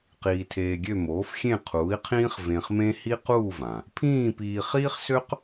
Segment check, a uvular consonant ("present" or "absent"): present